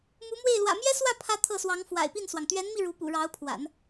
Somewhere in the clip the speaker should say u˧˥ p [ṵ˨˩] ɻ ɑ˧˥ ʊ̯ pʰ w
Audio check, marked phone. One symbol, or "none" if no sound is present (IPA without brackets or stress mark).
ṵ˨˩